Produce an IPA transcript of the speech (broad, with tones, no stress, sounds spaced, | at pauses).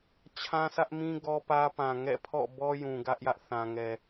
t͡ɕʰ ã˦ s ä˦ ʔ m ĩ˦ ɡ ɔ˦ p ä˦ p ã˨ ŋ ɛ̰˦˨ pʰ ɔ̰˦˨ b ɔ˦ j ũ˨ ɡ ä˦ ʔ j ä˦ ʔ θ ã˨ ŋ ɛ˨